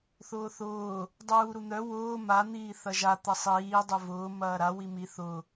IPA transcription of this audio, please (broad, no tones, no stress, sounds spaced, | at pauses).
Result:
θ ʊː θ ʊː | dˤ uː ɾ u n̪ œ w ʊː m a n̪ iː θ ɐ ʒ a t̪ ɐ sˤ iː dˤ ʊ v ʊː m ɐː ɾ a w i m i θ ʊ